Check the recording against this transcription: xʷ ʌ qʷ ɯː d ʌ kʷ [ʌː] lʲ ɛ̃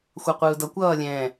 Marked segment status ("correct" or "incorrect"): correct